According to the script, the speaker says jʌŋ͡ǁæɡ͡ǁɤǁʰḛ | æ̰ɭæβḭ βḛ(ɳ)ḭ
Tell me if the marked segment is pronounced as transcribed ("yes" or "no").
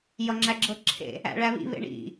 yes